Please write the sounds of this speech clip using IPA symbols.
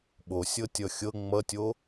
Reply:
ɓosʲɤtʲʌ xʲɤ ŋ͡mʌtʲo

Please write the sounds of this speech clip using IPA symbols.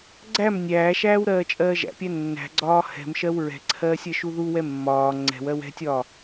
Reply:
ɡ͡ǀæm nʲæːʃæːw ɾɜːt͡ʃʼɜːʒæ̰pʲæ nːæ̤ɡ͡ǀɒː hɛ̤mʃɜw ɹɛ̤ǀʰɜːsʲ ɜʃuðuwɛ mːɒː ŋ͡ǀɛ̤wɜw ɛ̤tʲɒː

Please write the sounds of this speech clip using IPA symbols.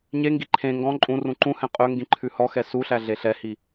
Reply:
ɲeŋɡi ǃʰẽ ŋɡɔ̃ ǃʼũ rũǃũhɛ̃ qʼɵ ŋɡĩǃʰʉhɔxɛ suɬæ ɮeɬɛhi

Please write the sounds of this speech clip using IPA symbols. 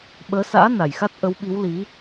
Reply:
ɓəː˨˦sa̰ː˧˥ na˨˩jxa˦˥t̚ ʔə˨˦wɓi˨˦w li˨˦

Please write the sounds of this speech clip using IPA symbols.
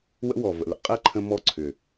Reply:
wə̰˦wɔ˨ və̰˨lə̰˨ qʼɛ˦ǃʰə̃˧ mɔ˦ǀʰʏ˨

